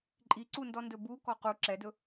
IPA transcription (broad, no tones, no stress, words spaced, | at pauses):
ǃʼiǀundɔ ndɵbu kɔqu ǁɛdɵ